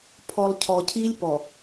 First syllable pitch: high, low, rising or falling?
low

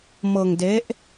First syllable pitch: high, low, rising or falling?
low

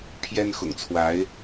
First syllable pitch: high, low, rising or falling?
high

